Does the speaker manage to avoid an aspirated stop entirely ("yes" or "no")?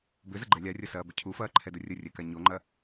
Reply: no